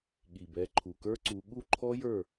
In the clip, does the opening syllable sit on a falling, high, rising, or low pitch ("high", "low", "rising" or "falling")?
low